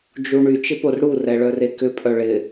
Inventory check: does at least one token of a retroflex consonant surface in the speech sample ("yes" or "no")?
yes